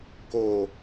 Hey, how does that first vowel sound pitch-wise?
low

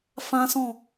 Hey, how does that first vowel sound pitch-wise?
high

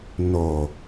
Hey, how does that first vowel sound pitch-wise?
low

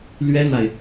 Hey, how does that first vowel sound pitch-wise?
high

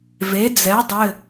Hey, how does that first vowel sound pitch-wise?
rising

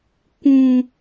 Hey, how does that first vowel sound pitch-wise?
low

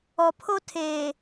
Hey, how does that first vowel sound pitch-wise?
low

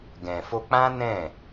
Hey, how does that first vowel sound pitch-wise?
low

